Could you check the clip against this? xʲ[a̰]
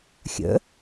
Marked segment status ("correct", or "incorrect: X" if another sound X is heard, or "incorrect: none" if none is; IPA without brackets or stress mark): incorrect: ə̰